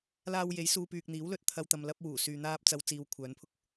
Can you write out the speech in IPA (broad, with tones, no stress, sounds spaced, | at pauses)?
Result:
l aː˨ w j e˨˥ j s uː˧ p yː˨ k̚ n̪ iː˨˥ w l ɵ˨˥ t̚ t̪ʰ ɐ˧ w t̪ ɐ˨ m l ɐ˧ p̚ w uː˨˩ s yː˨ n̪ aː˧ p̚ t͡s ɐ˨˧ w t͡s iː˧ w kʷʰ œː˨˧ n pʰ ʊ˥ k̚